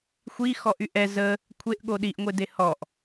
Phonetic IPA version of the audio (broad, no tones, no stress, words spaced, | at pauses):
xʷi xɔʔyʔɛ zə | kʷʰeʔɠo ɗiʔŋʷede hɔʔ